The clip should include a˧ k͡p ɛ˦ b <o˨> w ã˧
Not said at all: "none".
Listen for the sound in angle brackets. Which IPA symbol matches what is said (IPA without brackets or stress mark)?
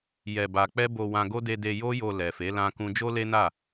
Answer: o˧